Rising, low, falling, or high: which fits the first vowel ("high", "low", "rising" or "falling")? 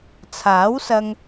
rising